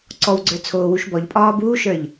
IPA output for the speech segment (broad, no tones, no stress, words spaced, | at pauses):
ǀɔwɡ͡ǀə˞ t͡sʰoːwuʃbɔʎ pʼɒːbuːʃə˞ʎ